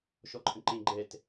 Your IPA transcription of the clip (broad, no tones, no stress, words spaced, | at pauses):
ʃɔǃʼə̃ǃẽ ɡ͡ǃɛt